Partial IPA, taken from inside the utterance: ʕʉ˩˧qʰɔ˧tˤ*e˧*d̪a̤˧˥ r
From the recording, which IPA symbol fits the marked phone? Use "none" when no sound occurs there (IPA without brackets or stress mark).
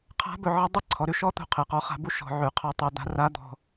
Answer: e˧